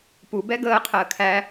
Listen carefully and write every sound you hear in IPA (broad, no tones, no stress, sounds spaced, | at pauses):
p u b ɛ ɡ əː qʰ əː kʰ æ